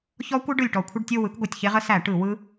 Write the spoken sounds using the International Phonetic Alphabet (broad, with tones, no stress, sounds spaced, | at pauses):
ç ɔ˦˥ kʷ ɯ˦˥ ɖ ɯ˨˩ lʲ ʈ ɔ˨˩ kʷʰ ə˦˨ ɖ tʲ o˦˨ w ɯ˩˥ k ɡʷ ɯ˨˩ tʲ ç e˦˥ ʁ ə˦˥ s æ˧˩˧ ʈ ɯ˧˩˧ w ɯ˦˥